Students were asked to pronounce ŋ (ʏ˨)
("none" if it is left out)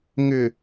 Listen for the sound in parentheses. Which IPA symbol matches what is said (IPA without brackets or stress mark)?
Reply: ʏ˨